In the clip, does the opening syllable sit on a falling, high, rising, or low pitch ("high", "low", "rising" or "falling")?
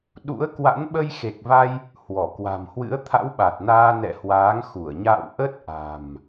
rising